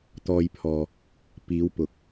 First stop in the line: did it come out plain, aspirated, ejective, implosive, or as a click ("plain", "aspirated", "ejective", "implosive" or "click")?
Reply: plain